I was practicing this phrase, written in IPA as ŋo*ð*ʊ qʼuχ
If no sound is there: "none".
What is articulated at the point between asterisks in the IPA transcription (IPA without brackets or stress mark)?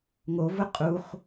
v